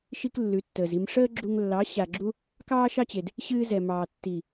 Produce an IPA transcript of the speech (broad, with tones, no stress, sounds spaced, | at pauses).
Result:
ʃ i˦ k lː ʉ˨˦ tː əː˨ z i˧ m ʂ əː˦ ɡ͡ǁ u˧ ŋ lː ɑ˨˦ ɕ a˨ ɡ͡ǁ u˦ | k ɑː˦ ʃ ɑ˦ t͡ɕ e˨ d | ɕ ɨː˧ z ɛ˨ m ɑː˨ tː i˨